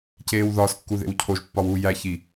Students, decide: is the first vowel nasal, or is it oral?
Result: oral